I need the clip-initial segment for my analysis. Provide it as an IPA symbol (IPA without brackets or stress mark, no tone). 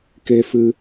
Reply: k